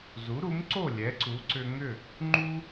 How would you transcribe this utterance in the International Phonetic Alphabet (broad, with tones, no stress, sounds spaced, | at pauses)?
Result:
z u˩˥ ɾ u˩˥ m ǀ o˥˩ lʲ ɛ˩˥ ǀ u˩˥ ǀ ʏ˧ ŋ ʏ˥˩ | ŋ͡ǃ u˥